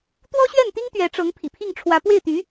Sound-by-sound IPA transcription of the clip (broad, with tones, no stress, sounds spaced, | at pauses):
t̪ w ɔ˥ ɕ ɥ ɛ˥˩ n t̪ i˥ ŋ t̪ ɥ ɛ˧˥ ʈ͡ʂ ɤ˧˥ ŋ pʰ ḭ˨˩ pʰ i˥˩ ŋ ʈ͡ʂʰ w ä˧˥ p w e˥˩ ɪ̯ t̪ y˧˥